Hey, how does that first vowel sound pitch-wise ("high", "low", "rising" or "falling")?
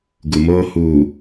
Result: low